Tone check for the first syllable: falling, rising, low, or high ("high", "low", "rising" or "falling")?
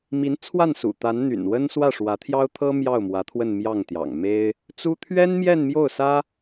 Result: rising